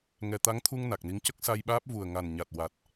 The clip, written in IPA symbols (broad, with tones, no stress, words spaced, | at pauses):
ŋɛ˨˩t̪a˧˥ŋt̪ʰu˧ŋ na˨˩k̚ni˧˥ŋ cə˦˥k̚sa˧jɓaː˦˥p̚ vu˨˩ə̯ŋa˨˩n ɲa˨˩t̚ wa˨˩t̚